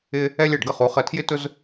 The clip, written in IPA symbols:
ɪ˥ | ɛ˥lʲɜ˥˩ɖɡʌ˥˩χu˩˥ χɜ˧tʰjɪ˥tʊ˥z

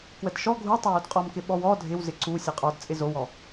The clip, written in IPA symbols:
kwədʃɔ ɡʱutˤɪw udqʼɔmkɪ ɓɔwɔ dʱɪw zɪǀusʲə qʼɔd t͡sʼɪzowɔ

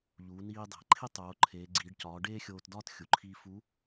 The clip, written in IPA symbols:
ʎuː˩˧niː˧dˤæ̤˩˧ ǃʰi˥tˤoː˩˧ǃʰeː˩˧ ɡ͡ǀiː˩˧ɖcɒː˩˧ ɖeː˥xʲoː˧tdɒː˥t xʲu˩ǃʰiː˧ fu˧˥

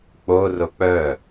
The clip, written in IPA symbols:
k͡po rok͡pœ

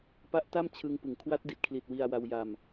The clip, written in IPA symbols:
pa˦˥ʔta˥˩m t͡ɕʰɯ˧ŋpɯ˨˩ŋ kʰwa˦˥t̚di˨˩t̚kʰli˨˩t̚ wi˧a̯wa˧wja˧m

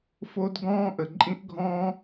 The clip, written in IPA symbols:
fo˥d ɡɔ̃ː˥ʔə˧ǃʼĩ˥ʔ ɡʱɔ̃ː˥

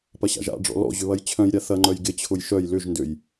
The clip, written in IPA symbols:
pɐɕa̰ʒa̰ɖ͡ʐɔ̰ lɔ̰ ʑʏβɐjt͡ɕʰœ̃jɾʲa θɐŋ͡ǃœj ɡɪt͡ɕʰʊj ʃœj lʏʒndøj

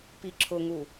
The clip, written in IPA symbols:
piǁʰʊŋu

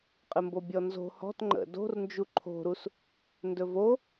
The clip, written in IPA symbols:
qʼɪmbobʲɔnzo̤ hɔ̤t ŋ͡ǃə̰ do̤rnd͡ʒu ǃʰo̤ɾus | ndɵvo

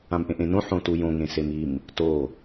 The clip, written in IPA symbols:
ãmʔẽʔẽnõ ħõtujõ ŋẽsemim | to

